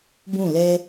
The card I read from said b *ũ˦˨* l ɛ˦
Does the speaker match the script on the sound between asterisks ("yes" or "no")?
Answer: yes